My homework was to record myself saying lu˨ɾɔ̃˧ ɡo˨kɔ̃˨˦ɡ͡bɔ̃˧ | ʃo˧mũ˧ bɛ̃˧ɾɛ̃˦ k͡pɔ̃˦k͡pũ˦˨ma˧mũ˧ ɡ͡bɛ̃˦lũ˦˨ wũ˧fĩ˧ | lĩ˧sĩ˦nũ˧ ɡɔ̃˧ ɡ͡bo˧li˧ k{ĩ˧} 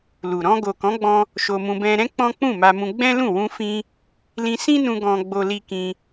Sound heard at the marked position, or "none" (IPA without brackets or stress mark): ĩ˧